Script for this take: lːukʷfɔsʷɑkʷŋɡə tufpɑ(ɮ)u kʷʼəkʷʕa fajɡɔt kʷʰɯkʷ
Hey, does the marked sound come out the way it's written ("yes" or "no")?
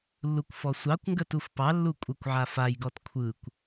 no